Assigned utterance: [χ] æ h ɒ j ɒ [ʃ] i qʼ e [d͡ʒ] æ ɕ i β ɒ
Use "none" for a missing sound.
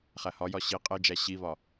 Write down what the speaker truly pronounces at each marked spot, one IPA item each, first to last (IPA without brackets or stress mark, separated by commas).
χ, ɕ, d͡ʒ